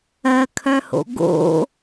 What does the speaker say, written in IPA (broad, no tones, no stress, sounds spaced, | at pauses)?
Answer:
ɜ kʰ œ h o̰ ɡ o̰